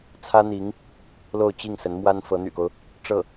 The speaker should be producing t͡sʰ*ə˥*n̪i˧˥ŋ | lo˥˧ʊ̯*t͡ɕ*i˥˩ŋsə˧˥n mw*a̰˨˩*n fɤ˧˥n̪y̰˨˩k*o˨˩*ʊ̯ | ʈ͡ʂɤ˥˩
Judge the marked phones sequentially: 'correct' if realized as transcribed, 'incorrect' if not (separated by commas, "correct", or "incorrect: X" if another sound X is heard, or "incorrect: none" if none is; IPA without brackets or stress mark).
incorrect: ä˥, correct, incorrect: a˥, incorrect: o˦